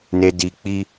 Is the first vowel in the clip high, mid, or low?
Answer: mid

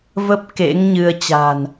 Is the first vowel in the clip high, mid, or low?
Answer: mid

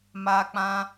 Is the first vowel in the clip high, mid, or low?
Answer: low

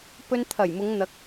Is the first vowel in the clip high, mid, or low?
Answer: mid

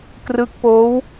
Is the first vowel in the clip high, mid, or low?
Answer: high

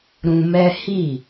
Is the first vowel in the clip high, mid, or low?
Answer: high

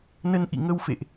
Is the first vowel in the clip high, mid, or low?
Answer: mid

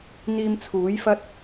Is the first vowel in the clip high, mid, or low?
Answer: high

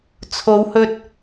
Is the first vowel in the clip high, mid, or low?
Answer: mid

